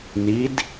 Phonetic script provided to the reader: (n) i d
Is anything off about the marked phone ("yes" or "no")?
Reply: no